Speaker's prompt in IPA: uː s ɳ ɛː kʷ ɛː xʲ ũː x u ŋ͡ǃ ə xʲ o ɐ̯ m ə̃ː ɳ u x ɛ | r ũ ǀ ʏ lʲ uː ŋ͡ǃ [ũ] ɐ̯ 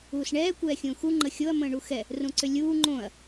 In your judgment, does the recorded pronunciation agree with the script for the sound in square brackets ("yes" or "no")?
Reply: no